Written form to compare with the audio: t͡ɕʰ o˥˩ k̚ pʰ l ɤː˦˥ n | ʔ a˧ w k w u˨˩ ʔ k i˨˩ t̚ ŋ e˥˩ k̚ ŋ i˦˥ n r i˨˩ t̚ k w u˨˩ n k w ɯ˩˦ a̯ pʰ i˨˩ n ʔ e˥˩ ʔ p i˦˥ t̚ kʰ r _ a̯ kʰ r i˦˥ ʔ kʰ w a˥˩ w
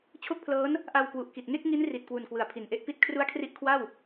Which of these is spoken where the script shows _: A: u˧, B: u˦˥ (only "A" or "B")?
B